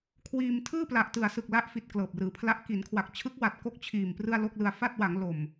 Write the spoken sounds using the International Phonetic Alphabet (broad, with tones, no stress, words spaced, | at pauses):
kʰwiː˧m tʰɯː˥˩pla˨˩ʔtɯ˨˩a̯sɯ˨˩k̚ la˦˥ʔfi˨˩t̚ klɤː˨˩p̚rɯː˩˦pʰla˦˥ʔ ki˩˦nkʰwa˨˩k̚t͡ɕʰɯ˦˥k̚wa˨˩t̚ ko˥˩k̚t͡ɕʰiː˨˩m prɯ˥˩a̯ lo˥˩k̚lɯ˧a̯ fa˥˩t̚wa˩˦ŋ lo˨˩m